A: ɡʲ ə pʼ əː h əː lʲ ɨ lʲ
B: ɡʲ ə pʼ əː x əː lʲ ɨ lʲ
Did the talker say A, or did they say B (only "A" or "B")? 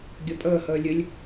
A